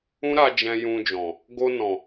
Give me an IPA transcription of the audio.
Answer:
ũ˦ɾa˧ d͡ʒɛ̃˧ jũ˧d͡ʒɔ̃˨ | ɡo˧nɔ̃˨

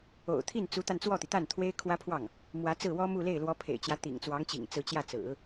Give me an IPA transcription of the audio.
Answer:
o̰˨˩ʊ̯t̪ʰi˥˩nt͡su˧˥t̪a˧n t͡swɔ˥˩t̪i˩t̪a˥˩n t̪ʰwe˥ɪ̯kʰwä˥pʰwɑ˥˩ŋ | mwä˧˥t͡sɹ̩˥˩wɔ˥mu˥˧ le˥˩ɪ̯lwɔ˧˥pʰḛ˨˩ɪ̯t͡ɕjä˦ t̪ḭ˨˩ŋt͡swɑ˧˥ŋt͡ɕḭ˨˩ŋ t͡sɹ̩˧˥t͡ɕjä˥˩ t͡sɹ̩˨˩˦

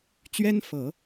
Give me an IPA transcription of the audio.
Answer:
t͡ɕɥɛ˥nfɤ˨˩˦

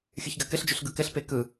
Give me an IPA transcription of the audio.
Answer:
xʲɯçɡakɘɬd͡ʒʉɬ ɡɯkɘɬpe kɯ

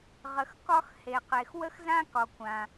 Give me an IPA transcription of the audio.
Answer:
ʁə˩xkɒ˥x he˩qe˩x wə˥xzã˥kɒ˩ kʷã˩

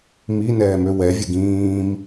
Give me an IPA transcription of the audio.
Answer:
mi nɛːmøwɛvʲɘɡ ĩːm

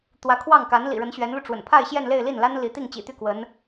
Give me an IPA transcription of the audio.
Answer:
t̪wä˧˥kʰwɑ˥˩ŋ ka˧˥nlḭ˨˩ɻə˧˥n ɕɥɛ˧˥nlu˧ ʈ͡ʂwə̰˨˩npʰa˥˧ɪ̯ ɕjɛ˥˧nle˥˧ɪ̯ li˥˩nla˥nli˧˥t̪i˥˩ŋ t͡ɕḭ˨˩t̪y˥˩ kwə˧˥n

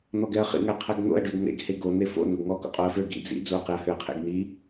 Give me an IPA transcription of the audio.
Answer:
n̪ɔɡɛɐ̯χḭ ŋæqʰæɡn̪o̰ɐ̯ ɖøɡn̪ḛɡ heɡo n̪efo̰ noɡŋɔ ko̰qʼoɐ̯fø ɡḭ d͡zḭ d͡zoɐ̯qeɐ̯høɐ̯qʰḛɡ n̪i

